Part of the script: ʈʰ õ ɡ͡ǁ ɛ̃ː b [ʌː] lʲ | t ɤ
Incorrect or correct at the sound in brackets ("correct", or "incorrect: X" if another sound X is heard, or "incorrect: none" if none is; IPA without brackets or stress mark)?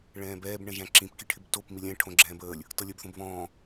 incorrect: əː